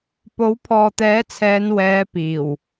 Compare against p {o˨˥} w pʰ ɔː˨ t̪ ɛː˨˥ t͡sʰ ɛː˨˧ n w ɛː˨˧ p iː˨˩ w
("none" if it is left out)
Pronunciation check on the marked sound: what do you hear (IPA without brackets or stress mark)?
o˨˥